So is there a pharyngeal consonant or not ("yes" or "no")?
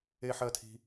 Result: yes